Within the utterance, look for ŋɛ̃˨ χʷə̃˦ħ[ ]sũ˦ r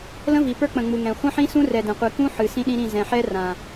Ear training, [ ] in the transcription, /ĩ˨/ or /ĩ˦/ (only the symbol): ĩ˦